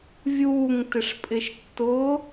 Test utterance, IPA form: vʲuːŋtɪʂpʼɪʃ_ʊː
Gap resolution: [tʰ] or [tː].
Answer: tː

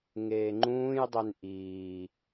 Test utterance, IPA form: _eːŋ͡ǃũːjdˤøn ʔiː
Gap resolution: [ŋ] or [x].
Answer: ŋ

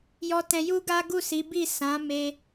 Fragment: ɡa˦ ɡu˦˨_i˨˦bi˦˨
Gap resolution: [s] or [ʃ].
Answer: s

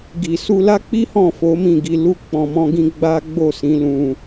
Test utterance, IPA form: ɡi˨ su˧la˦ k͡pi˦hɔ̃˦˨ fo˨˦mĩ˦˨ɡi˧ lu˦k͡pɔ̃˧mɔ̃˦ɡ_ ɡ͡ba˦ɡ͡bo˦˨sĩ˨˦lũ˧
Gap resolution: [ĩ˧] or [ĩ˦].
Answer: ĩ˦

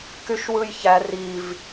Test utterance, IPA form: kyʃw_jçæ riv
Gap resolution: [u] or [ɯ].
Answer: ɯ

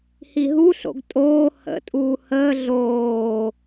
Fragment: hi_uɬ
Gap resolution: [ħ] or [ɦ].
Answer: ɦ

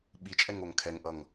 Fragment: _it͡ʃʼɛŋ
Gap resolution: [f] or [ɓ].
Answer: ɓ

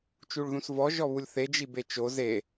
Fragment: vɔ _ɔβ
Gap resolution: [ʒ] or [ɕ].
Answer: ʒ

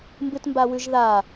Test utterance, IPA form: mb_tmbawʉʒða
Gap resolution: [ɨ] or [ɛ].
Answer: ɨ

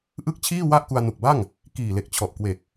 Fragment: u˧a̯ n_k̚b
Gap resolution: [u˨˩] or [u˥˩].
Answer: u˨˩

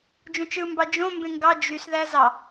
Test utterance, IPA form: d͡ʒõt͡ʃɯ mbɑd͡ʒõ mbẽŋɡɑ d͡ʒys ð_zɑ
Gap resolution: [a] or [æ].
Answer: æ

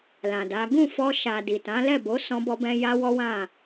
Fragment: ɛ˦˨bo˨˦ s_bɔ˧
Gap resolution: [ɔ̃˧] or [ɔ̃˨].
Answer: ɔ̃˧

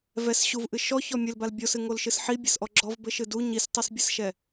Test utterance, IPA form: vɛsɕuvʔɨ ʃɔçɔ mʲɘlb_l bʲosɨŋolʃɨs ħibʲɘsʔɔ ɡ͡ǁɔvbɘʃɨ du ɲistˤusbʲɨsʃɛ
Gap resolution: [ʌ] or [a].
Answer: a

